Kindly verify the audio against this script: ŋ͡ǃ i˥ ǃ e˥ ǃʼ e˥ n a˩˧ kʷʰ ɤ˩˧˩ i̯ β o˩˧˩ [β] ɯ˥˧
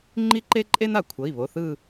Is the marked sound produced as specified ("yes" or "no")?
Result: no